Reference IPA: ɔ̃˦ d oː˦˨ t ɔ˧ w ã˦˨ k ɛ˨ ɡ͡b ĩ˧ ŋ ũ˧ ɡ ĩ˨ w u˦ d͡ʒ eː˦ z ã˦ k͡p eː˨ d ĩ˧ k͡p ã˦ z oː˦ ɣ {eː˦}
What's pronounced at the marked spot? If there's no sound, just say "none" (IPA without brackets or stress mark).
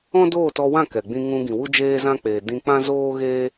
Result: eː˦